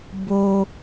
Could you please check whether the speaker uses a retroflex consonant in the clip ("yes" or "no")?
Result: no